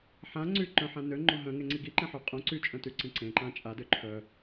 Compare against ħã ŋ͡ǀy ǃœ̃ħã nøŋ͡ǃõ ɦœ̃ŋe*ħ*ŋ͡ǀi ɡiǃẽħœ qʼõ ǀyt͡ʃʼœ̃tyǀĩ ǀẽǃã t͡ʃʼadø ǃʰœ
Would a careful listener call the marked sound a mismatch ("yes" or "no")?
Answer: yes